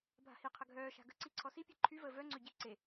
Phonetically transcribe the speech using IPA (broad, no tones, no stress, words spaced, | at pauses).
bʱa̤hiqʰə ɡʱœːʃa̤ ɡə̤ǀi ǀʰɔsipʲe ǃʰyvəː vœŋ͡ǀø ɟe ǀe